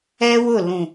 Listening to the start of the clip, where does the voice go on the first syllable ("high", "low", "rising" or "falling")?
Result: high